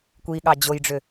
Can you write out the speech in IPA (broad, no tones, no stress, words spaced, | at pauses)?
kʷiɠɑ d͡ʑojɖ͡ʐʏ